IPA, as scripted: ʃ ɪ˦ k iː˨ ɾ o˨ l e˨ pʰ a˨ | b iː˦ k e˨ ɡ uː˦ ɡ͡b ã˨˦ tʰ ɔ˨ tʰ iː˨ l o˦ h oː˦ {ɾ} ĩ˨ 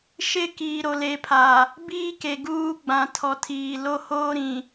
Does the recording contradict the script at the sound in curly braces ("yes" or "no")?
no